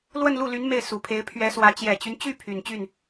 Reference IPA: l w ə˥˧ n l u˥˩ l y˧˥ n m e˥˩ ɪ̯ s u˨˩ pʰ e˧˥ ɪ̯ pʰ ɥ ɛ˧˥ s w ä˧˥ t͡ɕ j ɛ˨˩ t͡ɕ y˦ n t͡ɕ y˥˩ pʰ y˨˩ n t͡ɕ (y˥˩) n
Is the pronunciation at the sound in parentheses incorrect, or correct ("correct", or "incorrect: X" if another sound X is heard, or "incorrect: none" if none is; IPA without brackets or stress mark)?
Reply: correct